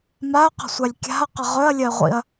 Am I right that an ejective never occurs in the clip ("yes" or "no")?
yes